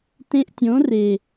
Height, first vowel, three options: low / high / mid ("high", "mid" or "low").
mid